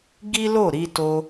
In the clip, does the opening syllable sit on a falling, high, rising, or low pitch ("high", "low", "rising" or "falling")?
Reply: high